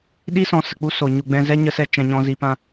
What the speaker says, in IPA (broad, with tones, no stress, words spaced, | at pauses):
ɗi˦ sɔ̃˧sə˨k͡pu˦ so˨ ɲu˧ɡ͡bɛ̃˦ zɛ˦ ɲə˦sɛ˦ t͡ʃɛ̃˧ɲɔ̃˧ zi˧pã˦